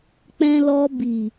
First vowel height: mid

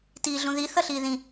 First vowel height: high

